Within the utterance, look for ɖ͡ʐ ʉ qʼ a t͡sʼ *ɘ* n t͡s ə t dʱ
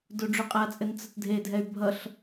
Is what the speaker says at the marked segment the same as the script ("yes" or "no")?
yes